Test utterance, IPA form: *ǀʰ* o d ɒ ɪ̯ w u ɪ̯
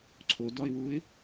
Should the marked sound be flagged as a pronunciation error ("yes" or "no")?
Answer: no